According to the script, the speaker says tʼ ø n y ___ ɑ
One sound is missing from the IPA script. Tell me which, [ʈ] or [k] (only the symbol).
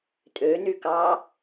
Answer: k